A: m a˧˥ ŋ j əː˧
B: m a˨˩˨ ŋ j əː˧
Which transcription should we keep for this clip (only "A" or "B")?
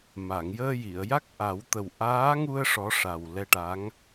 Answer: B